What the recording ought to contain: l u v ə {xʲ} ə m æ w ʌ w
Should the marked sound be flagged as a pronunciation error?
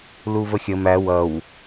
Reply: no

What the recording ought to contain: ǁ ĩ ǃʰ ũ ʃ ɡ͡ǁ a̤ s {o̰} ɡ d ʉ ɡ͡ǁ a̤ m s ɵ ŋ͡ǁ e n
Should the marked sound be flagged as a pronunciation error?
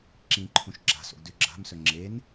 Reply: no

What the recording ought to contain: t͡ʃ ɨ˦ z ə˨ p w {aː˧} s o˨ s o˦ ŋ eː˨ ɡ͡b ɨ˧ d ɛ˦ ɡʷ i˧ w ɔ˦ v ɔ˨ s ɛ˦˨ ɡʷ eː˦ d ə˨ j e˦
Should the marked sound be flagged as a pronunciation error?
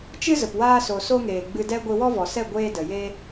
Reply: no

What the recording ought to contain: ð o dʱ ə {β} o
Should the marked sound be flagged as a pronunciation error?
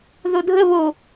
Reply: no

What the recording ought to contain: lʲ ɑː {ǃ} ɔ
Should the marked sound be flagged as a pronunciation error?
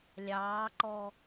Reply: no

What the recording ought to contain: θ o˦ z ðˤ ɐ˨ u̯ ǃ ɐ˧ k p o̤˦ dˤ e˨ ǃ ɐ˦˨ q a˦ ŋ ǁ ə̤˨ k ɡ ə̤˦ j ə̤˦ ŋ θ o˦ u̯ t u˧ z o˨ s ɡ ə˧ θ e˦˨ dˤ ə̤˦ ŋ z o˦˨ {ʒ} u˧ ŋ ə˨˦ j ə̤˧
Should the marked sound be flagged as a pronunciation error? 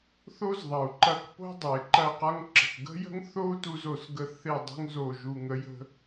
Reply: no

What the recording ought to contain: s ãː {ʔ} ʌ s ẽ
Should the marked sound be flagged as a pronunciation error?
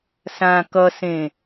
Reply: yes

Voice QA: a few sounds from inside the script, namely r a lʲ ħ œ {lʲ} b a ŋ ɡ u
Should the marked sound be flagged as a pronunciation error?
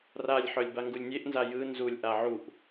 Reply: no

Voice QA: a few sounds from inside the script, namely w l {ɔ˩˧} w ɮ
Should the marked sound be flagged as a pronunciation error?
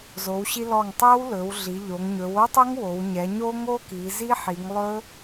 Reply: yes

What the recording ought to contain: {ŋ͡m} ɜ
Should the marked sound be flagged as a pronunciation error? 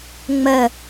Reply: no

